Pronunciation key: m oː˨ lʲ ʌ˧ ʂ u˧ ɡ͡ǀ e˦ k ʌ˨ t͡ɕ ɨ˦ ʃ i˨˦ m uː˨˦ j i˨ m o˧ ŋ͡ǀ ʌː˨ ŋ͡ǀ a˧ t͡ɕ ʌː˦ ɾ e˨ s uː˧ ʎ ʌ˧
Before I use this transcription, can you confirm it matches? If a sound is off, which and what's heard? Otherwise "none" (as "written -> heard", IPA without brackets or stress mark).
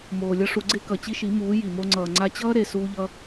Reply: ɨ˦ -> i˦